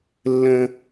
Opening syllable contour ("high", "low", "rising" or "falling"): high